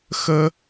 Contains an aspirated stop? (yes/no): no